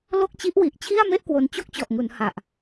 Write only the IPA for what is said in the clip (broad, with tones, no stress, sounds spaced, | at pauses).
l o˥˩ k̚ t͡ɕ i˦˥ ʔ w i˨˩ ʔ t͡ɕʰ i˥˩ a̯ m e˥˩ ʔ k w o˧ n t͡ɕ o˥˩ k̚ t͡ɕ ɔ˨˩ ʔ ŋ u˩˦ n h a˨˩ ʔ